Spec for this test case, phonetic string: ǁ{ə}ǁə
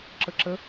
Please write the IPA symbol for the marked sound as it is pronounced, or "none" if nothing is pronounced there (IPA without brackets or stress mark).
ə